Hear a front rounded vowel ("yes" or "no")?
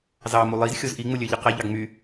yes